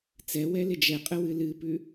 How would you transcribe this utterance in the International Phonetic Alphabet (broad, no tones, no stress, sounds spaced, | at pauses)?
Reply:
t͡s ɛ w ɛ l ɪ d͡ʒ ɛ qʼ ə w ɨ l ɨ p ʉ